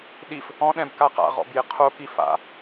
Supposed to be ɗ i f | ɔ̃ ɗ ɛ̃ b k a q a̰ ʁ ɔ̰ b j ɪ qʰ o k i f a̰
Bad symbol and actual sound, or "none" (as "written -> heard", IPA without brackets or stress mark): none